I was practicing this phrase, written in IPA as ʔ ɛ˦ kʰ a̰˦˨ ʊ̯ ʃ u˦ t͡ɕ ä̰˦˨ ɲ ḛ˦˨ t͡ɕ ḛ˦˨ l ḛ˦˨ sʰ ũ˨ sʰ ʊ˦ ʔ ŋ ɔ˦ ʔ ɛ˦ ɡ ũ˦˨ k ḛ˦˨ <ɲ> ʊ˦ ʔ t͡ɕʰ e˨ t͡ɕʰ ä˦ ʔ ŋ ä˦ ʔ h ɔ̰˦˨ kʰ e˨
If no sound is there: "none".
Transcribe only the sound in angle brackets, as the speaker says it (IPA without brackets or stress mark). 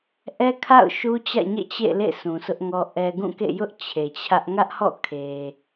j